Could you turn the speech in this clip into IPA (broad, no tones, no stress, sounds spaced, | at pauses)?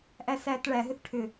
ʔ æ s æ t ɭ æ ɦ ʏ θ ʈʰ ʏ